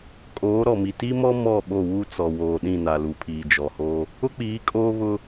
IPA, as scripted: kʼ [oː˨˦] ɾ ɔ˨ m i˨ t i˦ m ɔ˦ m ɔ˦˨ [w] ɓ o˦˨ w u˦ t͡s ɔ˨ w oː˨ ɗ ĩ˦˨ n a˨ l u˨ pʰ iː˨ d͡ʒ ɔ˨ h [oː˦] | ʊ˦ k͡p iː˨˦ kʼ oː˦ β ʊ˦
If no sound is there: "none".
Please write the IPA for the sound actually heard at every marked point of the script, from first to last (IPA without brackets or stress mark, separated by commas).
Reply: oː˨˦, none, o˦